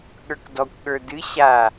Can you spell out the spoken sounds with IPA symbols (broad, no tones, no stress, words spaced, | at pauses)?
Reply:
ɠə˞kdɔkʷɠə˞ dɨ ɕa